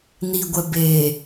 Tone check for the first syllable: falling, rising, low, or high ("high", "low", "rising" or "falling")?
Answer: low